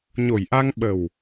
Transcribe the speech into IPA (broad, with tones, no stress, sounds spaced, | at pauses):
ɲ o˨˩ j ʔ a˧ ŋ ɓ ə˨˩ w